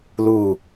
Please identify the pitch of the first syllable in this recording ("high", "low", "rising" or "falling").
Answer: falling